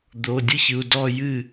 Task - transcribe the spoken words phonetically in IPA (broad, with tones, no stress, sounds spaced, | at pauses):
d̪ oː˩˧˩ dʲ ɯ˥˧ ç ɯ˩˧˩ u̯ d ɔː˥˧ j ɨː˥˩